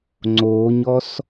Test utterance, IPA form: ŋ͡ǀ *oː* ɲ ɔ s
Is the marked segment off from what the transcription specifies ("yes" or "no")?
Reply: no